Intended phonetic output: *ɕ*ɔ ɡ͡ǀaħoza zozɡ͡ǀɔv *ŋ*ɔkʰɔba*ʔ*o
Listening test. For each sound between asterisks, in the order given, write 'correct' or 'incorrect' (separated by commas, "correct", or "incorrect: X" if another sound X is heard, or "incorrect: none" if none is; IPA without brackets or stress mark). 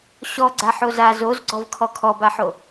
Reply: correct, incorrect: kʰ, incorrect: ħ